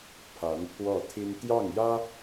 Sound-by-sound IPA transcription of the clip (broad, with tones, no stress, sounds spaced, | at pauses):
pʰ a˧˥ n pʰ w ɔ˥˩ t̪ʰ i˥ n t̪ j ɑ˥˩ ŋ j ä˥